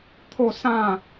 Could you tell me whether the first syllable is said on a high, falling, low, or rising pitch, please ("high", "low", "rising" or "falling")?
falling